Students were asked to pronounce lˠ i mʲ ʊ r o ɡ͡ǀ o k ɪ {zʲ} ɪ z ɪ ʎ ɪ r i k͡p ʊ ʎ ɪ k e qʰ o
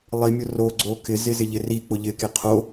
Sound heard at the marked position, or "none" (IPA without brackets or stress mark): z